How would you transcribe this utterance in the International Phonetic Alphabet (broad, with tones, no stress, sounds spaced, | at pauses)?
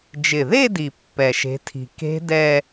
d͡ʒ ɪ˨˩ ð e˥˧ d i˨˩ pː ɛ˨˩ ʃ e̤˨˦ tʰ i̤˨˩ k e̤˦˥ d ɛ˥˧